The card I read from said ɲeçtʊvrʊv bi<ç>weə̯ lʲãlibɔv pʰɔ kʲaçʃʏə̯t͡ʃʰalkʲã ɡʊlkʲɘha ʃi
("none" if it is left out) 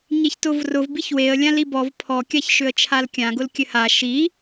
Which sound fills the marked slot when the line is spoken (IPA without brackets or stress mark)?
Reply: ç